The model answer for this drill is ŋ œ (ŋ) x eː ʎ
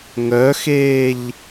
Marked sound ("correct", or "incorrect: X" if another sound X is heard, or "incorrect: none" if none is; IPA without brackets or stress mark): incorrect: none